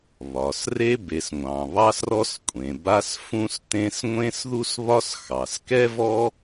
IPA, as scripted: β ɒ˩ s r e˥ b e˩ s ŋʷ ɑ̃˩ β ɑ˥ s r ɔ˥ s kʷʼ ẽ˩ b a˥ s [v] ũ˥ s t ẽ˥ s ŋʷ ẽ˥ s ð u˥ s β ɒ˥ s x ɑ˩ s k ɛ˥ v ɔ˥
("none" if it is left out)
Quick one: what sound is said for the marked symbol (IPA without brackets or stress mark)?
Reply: f